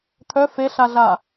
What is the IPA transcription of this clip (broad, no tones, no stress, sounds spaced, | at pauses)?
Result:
t̪ʰ œ f e ɬ a ɮ a